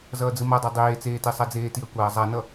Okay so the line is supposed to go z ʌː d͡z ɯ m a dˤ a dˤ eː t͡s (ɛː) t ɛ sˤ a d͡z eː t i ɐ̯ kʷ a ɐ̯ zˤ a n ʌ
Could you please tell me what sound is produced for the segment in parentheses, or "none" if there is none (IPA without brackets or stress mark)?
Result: eː